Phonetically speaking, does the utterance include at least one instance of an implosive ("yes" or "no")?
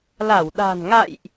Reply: yes